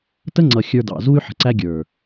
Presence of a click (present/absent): present